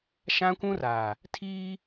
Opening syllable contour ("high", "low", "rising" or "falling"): high